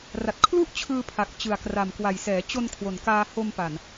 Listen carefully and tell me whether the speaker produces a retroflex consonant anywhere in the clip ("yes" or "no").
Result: no